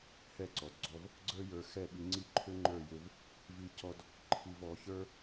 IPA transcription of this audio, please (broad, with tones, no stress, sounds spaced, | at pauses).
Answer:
h ɛ˥˩ ǀ ɔ˩ d ɡ͡ǀ ɔ˧ v | ɡ͡ǀ ə˞˥ j ə˞˧ x ɛ˥˩ ɓ i˧ ŋ͡ǀ i˥˩ ǃʰ ʏ˥ ŋ͡ǃ ə˞˥˩ j ʏ˧ v | v i˧ c ɔ˧ d | ǃʰ i˧ v ɔ˩˥ ç ə˞˥